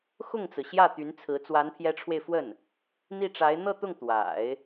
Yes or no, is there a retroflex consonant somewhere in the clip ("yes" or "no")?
yes